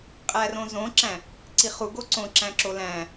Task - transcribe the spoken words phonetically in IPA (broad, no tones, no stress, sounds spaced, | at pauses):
qʼ æ r õ z õ ǁ æ̃ | ǀ i χ u ɡ o ǀ õ ǁ æ̃ ǁ o l æ̃